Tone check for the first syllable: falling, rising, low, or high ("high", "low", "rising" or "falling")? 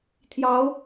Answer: rising